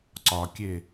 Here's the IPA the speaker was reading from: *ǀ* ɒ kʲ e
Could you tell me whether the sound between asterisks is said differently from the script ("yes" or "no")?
no